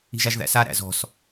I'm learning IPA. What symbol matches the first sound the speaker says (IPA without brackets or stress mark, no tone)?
i̤